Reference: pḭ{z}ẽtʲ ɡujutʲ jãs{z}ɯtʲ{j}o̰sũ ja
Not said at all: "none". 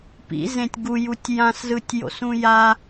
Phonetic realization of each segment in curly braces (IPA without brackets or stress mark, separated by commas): z, z, j